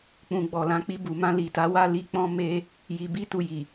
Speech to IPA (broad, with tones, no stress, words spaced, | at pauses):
k͡pũ˨ ɡ͡bɔ˨lã˨˦k͡pi˧ bu˨mã˧ li˨ta˨˦wa˦˨ li˧k͡pɔ̃˧ me˧ | ji˨bi˧tu˨ ji˨